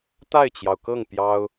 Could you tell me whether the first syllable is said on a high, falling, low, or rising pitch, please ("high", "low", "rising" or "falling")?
falling